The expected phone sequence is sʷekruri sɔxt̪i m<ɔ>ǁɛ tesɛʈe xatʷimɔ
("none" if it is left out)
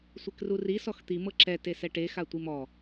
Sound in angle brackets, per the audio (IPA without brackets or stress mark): ɤ